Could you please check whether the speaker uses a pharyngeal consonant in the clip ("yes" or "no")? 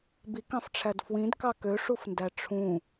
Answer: no